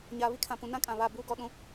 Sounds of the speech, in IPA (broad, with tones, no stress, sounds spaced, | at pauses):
ɲ aː˨ β i˦ kʰ ã˨ p ũ˨ n ã˦ kʼ ã˨ β a˦˨ b uː˦ ɡ ɔ˦ ɗ ũ˦